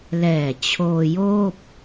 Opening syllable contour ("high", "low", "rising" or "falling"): low